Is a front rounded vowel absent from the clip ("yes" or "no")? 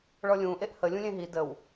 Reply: yes